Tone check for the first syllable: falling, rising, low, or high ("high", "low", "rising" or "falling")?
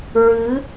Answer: rising